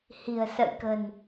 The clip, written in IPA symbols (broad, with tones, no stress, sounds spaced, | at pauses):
h i̤˨˩ ə̯ s ə̰˧˨ j k ə̤˨˩ n